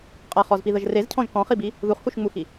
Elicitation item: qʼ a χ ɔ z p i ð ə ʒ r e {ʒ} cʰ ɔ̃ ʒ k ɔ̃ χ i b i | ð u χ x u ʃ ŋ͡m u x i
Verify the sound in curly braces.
incorrect: z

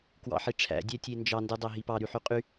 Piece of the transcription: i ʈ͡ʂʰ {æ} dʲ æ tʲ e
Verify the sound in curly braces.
incorrect: æ̰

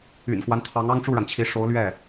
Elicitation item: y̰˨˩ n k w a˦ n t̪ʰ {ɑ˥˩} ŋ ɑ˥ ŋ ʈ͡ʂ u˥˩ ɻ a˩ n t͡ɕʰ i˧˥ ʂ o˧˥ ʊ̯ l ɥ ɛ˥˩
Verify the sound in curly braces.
incorrect: ɑ˧˥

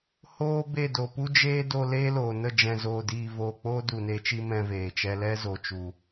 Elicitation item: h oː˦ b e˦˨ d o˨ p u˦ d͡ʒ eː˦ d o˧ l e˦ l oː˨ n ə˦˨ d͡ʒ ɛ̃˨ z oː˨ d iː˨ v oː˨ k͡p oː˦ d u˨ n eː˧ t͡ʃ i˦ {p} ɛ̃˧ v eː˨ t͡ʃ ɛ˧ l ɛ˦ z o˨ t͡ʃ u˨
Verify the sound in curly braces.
incorrect: m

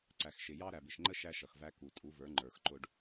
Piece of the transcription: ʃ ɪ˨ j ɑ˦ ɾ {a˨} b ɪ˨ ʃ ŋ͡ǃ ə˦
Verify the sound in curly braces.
incorrect: æ˨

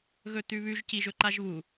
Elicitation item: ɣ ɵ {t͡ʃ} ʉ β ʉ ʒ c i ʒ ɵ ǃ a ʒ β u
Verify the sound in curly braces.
incorrect: t̪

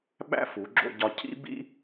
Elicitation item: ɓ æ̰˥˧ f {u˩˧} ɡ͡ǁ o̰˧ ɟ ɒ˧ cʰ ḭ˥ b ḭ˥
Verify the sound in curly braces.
correct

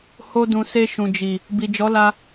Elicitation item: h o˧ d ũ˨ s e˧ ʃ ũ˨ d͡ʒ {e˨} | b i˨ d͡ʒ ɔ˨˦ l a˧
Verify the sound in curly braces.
incorrect: i˨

